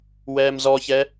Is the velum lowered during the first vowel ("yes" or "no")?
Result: no